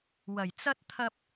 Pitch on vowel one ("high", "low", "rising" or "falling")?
low